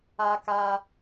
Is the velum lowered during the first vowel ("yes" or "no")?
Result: no